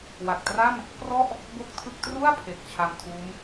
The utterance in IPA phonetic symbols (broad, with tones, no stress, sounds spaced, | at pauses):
w a˨˩ k̚ t r a˥˩ m | p r ɔ˥˩ ʔ | b o˥˩ k̚ tʰ ɯ˥˩ k̚ t r u˥˩ a̯ pʰ e˨˩ k̚ t͡ɕʰ a˧ m tʰ uː˦˥ m